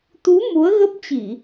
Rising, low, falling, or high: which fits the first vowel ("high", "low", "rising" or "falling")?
rising